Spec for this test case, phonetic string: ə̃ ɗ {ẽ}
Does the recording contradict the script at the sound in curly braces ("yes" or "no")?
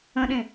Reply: no